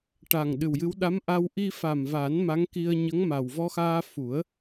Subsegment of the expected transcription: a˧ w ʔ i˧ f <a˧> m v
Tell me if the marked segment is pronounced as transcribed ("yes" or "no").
no